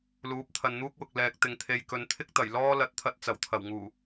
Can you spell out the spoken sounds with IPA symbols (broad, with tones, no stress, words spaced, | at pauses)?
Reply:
luː˨˥p̚t̪ʰɐ˨nn̪uː˥k̚wʊ˨k̚ lɛː˨k̚ t̪ɪ˨ŋt̪ʰe˨j kɵ˨nt̪ʰɪ˥k̚ t̪ɐ˨˩jlɔː˥ lɐ˨˥t̚t̪ʰɐ˨t̚ t͡sɐ˨˩wt̪ʰɐ˨˩wŋuː˨˩